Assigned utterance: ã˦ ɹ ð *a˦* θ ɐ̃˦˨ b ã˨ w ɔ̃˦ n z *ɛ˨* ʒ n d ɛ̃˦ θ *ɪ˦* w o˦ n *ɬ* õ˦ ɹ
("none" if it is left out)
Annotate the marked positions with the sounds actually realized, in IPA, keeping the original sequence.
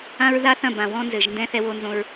a˦, ɘ˨, ɛ˦, z

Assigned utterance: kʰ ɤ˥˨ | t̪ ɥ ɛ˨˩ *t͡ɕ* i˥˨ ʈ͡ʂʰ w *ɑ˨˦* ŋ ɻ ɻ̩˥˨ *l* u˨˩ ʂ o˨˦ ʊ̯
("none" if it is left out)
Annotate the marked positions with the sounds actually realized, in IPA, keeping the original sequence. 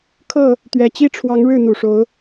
t͡ɕ, ɑ˨˦, n̪

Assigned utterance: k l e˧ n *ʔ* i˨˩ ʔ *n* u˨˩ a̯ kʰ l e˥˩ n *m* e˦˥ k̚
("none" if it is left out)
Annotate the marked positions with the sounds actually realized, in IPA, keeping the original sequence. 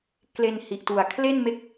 h, t, m

